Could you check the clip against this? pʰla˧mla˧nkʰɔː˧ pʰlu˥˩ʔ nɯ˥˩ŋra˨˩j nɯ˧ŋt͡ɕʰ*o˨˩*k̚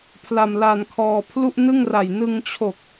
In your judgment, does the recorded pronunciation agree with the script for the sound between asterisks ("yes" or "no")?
yes